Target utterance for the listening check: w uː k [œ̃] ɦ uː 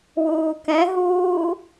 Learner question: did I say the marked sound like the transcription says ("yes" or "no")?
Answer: no